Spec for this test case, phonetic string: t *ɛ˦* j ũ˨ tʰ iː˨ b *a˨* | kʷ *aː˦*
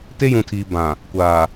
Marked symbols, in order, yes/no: no, no, no

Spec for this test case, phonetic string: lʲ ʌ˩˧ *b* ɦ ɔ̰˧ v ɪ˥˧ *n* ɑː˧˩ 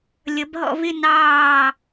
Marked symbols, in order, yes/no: yes, yes

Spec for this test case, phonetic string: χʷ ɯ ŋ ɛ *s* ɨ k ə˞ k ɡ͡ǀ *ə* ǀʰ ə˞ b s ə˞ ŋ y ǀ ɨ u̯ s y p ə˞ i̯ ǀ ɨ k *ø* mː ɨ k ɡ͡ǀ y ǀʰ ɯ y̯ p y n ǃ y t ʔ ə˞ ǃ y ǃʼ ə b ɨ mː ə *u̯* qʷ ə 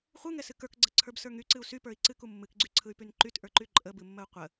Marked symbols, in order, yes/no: yes, yes, no, yes

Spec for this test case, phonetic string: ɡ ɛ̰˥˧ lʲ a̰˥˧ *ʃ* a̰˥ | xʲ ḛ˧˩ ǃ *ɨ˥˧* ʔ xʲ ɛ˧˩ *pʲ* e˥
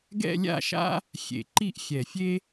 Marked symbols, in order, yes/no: yes, no, no

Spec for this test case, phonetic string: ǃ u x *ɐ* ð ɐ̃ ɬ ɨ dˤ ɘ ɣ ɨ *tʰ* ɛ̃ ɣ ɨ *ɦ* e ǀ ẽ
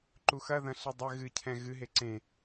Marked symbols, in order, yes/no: yes, no, yes

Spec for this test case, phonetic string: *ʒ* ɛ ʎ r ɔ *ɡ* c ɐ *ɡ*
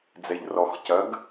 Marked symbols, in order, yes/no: no, no, yes

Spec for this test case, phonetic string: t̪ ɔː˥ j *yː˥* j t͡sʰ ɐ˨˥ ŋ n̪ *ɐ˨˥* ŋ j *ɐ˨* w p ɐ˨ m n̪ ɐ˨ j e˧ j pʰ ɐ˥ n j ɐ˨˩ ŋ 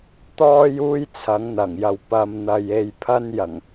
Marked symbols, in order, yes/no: no, no, yes

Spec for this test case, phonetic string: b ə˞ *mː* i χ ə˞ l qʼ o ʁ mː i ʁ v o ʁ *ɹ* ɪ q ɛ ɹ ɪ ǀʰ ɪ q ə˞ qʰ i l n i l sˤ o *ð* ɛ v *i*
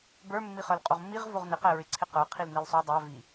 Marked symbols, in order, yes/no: yes, no, no, yes

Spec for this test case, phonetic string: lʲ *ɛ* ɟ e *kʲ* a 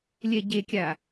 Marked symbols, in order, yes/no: yes, yes

